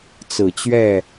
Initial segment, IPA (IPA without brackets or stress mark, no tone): t͡s